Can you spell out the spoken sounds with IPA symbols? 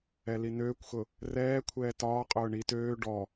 ɛ l i n øː kʷ x ʊ | r ɛː kʷʰ ɛː t ɒː qʼ ʊː ɳ i t øː ɖ ɔ

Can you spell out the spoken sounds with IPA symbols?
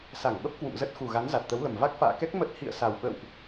s a˧˩ ŋ ɓ ə˦˥ p̚ k w ṵ˧˨ m z ə˦˥ t̚ x u˨˩ ɣ a˨˦ n z a˨˩ t̚ t̪ ə˨˦ w l ə˨˩ m v a˦˥ k̚ f a̰ː˧˨ k ɛ˦˥ k̚ m ə˦˥ t̚ h ḭ˧˨ ə̯ s a˨˩ w ɓ ə̰˧˨ w ʔ

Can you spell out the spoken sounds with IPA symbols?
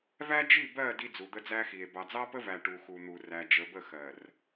v æ˦ d͡ʒ i˦˨ b ɜ˦˨ d i˦ d͡z u˨ d̪ ə˦ d͡z æ˦ x i˨ e̯ b ɑ˨ d͡z ɑ˦ p ə˦ v æ˨ ʈ u˨ x u˨ n̪ u˨ r æ˨ d͡ʒ ə˨ b ə˦˨ x ɜ˨ r

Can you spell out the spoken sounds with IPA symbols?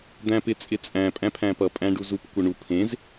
d̪ æ̃ p ɪ t͡sʼ ɪ t͡sʼ æ̃ pʼ æ̃ pʰ æ̃ p ʌ pʼ æ̃ ɖ u z u p kʷ ʌ ɳ u pʰ ẽ z

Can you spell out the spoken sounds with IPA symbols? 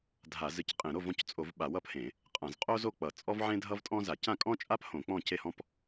dʱ a˧˩˧ z ɨ˥ c qʼ ẽ˧˩˧ ɾ o˥˩ v ɔ̃˥˩ c t͡sʼ o˧˩˧ v ɓ a˧˩˧ w ʌ˥˩ p h ẽ˧˩˧ | qʼ ã˧˩˧ z qʼ o˥ z o˥˩ k͡p ʌ˧˩˧ t͡sʼ ɔ˥ v ʕ ẽ˥ dʱ ʌ˥ v tʼ ɔ̃˥ z a˧˩˧ c ã˥˩ kʼ ɔ̃˥ t͡ʃʼ a˥ p h õ˧˩˧ k͡p ɔ̃˥˩ c e˥˩ h ɔ̃˥ p

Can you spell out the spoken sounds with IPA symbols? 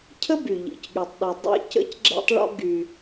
cʰ ə˥ b y˩ ʎ ḭ˩ c ɠ y˩ tˤ ɗ y˩ dˤ ɛ̰˥ c ə̰˥ c ɡ͡ǁ ɛ̰˥ tˤ ɭ ɔ̰˥ ɡ y˩

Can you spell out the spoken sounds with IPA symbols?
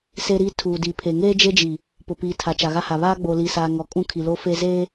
s e˦ ɾ iː˦ tʰ uː˨ d i˨ pʰ e˨ ŋ eː˦ d͡ʒ e˦ d͡ʒ i˨ | p ʊ˨ p iː˨ tʰ a˨ t͡ʃ a˨ ɣ a˦ h a˨ β aː˦ ɡ͡b o˨ l i˨ s aː˨ ŋ ɔ˨ kʼ ũ˦ kʰ i˨ l o˦ f e˦ z eː˦

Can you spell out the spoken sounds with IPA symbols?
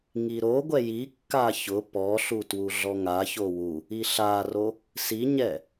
ŋ i ɾ o ɡʷ ɛ j i kː a ç ʊ p ɔ ɬ u t w u ɮ ɔ ŋ a ç o w u | i ɬ a r o | s i ɲ ɛ

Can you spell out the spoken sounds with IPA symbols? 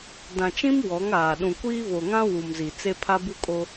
d ã˨ t͡ʃ ĩ˦ m w ɔ˨˦ ŋ aː˨ ɗ ũ˨ kʷ iː˦ v o˨ ŋ ã˦ w u˨ m z i˨ t͡s e˦ pʰ a˦ b u˦ kʼ o˦

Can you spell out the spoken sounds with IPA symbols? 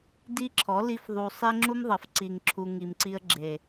d i˦ ǁʰ ɔ˨˦ l i˦ f ðˤ u˧ sˤ e˦ ŋ͡ǁ u˦ m ðˤ ʌ˨ f ǀ i˨ ŋ ǁʰ u˨ ŋ i˨ m ǀ i˧ ə̯ ɡ͡ǁ e˨

